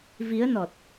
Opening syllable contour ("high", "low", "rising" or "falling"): rising